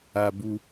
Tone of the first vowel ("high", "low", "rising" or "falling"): low